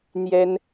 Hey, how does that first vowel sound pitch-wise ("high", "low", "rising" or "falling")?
high